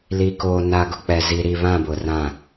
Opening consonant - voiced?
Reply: yes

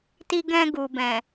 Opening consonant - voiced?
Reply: no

